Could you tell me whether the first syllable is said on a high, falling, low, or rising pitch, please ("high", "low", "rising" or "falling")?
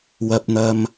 low